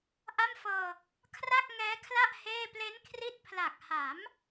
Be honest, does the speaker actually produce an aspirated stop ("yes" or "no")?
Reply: yes